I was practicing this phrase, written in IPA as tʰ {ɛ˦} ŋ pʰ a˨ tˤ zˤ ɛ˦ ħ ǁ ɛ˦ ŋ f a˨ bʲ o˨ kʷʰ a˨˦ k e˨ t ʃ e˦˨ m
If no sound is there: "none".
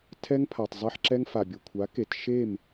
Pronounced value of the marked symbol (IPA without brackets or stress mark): ɛ˦